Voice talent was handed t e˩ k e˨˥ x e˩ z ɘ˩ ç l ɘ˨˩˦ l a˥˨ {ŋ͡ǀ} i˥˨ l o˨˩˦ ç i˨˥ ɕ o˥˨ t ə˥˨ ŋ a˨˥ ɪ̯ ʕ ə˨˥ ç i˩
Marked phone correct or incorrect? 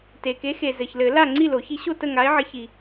correct